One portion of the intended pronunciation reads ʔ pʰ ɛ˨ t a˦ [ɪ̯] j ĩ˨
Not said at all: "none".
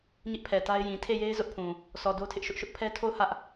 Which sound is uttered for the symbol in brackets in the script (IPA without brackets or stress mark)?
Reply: ɪ̯